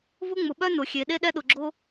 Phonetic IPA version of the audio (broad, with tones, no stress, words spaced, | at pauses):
vʊ˥ŋ͡mʊ˩ɓœ˥ nʊ˩xʲe˩ ɗe˥ɗɛ˥ɗʊ˩ɡ͡ǁo˥